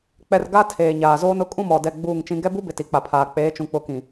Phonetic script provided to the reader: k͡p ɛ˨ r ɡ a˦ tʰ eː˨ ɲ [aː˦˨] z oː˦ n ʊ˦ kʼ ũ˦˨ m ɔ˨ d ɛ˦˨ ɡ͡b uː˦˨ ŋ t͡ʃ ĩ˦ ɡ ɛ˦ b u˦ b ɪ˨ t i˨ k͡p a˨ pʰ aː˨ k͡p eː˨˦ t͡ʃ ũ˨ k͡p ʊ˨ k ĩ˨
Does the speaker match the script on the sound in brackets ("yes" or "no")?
no